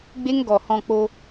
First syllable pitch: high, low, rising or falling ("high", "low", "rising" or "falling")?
high